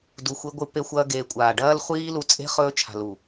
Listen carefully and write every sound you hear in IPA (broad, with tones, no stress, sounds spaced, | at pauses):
d u˨ xʷ i˧ ɡʷ ɨ˧ p e˧ xʷ ɐː˧ ɡ eː˨ kʷʼ aː˨ ɖ ɐː˦ l χʷ iː˦ l u˧ t͡sʼ e̤˦ χ ɵː˦ t͡ʃʰ a̤˨ l u˨